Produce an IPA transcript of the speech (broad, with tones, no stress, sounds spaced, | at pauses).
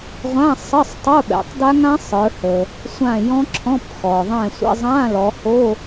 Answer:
ʁʷ ã˧˥˧ sˤ ə˧˥˧ sˤ tˤ o˧˥˧ ɓ ɛ̰˩˧ tˤ d a˦˥ ŋ ã˦˥ sˤ ə˞˩˧ h ə˩ | sʷ ã˧˩ j ɔ̃˦˥ ǁʰ ɔ̃˧˥˧ p x ɔ˩ ðˤ ɛ̃˧˩ sʷ ə̰˧˥˧ zˤ ã˧˥˧ l ɔ˩˧ h o˧˥˧